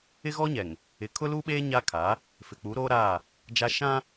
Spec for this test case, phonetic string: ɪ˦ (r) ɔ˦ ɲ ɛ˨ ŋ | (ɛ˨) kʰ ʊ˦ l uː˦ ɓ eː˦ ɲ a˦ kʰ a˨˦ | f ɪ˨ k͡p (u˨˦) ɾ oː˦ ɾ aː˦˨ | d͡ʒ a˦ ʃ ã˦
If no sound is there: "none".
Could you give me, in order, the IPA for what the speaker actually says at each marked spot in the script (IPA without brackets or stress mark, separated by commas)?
ɣ, ɪ˨, u˨˦